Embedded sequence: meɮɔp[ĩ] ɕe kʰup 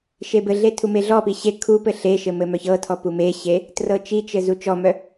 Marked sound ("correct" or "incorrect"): incorrect